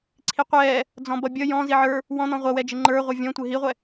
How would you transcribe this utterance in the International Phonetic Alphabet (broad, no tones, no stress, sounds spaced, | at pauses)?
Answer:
ǀʰ i qʷ ɛː | d͡z ɔ̃ b ʌ bʲ ʌ j ɔ̃ z i ʕ ə˞ | w ɔ̃ n̪ ɔ̃ ʁʷ ʌ w ɛ d͡ʒ ɪ ŋ͡ǃ ə˞ ʁʷ ʌ vʲ ɔ̃ tʷ ɪ ɦ i ʁʷ ɛ